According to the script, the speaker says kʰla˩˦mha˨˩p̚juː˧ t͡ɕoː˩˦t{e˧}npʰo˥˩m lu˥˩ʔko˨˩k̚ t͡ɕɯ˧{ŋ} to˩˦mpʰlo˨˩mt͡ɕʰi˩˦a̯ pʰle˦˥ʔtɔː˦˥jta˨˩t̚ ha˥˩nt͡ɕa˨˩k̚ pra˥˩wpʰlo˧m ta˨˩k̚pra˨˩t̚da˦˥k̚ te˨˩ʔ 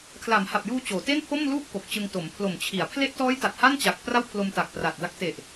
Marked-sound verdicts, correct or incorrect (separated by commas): incorrect, correct